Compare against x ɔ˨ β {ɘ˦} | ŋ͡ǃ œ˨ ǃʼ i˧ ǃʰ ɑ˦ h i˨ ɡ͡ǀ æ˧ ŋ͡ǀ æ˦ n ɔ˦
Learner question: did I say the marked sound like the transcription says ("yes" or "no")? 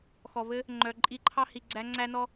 yes